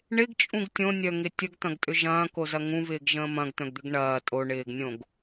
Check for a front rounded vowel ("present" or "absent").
present